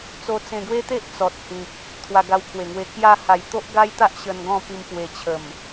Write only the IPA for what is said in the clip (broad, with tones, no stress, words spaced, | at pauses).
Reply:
t͡so˧t͡sẽ˧ɡwe˦t̪e˦ʔ t͡sɔ˨t̚hĩ˨k̚ | t̪ʰwa˧ɡa˧wkʰwe˨˩ŋwe˧ kja˧ha˨˩j t̪o˦ʔɡa˦jt̪a˦ʔ ɕə˧nɡɔ̃˥˧pi˧m pwe˨˩t͡ɕʰə˨˩m